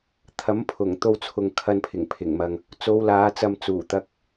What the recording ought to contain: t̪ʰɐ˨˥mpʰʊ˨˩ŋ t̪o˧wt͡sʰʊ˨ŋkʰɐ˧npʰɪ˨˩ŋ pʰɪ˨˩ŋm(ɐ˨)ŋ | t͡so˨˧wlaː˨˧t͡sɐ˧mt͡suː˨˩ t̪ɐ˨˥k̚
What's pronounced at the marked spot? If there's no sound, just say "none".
ɐ˨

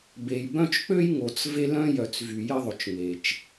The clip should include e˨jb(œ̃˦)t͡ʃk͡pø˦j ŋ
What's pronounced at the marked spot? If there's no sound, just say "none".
œ̃˦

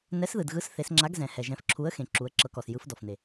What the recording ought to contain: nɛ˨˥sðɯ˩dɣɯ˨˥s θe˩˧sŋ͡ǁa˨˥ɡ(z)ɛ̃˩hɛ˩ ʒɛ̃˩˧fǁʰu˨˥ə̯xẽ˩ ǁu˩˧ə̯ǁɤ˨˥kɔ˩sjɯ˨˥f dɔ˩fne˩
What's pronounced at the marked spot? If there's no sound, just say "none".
z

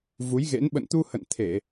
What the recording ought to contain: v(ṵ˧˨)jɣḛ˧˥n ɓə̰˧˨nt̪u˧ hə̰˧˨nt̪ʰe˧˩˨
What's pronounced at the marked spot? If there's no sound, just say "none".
u˨˦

